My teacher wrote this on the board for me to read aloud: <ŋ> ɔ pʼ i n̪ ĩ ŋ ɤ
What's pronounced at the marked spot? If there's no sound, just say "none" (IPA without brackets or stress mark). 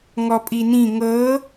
ŋ